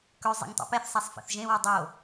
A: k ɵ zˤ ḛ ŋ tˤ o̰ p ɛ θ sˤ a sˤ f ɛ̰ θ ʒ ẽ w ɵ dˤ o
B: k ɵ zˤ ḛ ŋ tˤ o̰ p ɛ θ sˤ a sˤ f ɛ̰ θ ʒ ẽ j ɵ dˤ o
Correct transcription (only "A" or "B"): A